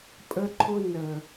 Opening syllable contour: high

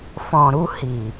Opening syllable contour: low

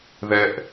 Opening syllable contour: low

